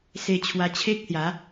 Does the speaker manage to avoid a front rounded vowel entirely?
yes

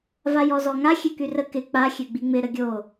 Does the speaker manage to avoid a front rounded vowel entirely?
no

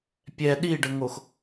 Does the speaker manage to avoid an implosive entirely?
no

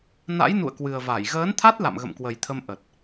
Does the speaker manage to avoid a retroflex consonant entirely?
yes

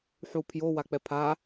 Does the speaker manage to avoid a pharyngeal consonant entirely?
no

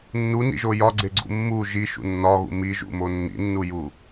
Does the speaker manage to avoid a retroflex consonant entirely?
yes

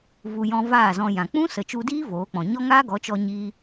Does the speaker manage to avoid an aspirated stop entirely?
yes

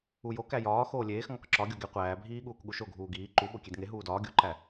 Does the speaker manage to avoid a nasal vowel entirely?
yes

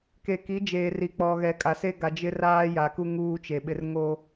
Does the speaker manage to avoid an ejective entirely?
no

